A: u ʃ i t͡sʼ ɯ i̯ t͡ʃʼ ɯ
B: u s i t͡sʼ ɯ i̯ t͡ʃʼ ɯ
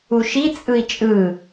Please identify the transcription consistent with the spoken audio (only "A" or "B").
A